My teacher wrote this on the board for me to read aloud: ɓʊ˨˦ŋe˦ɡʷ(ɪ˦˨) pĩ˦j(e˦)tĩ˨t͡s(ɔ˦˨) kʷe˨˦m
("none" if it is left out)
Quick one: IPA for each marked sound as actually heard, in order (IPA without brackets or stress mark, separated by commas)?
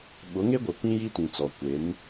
ɪ˨, i˦, ɔ˨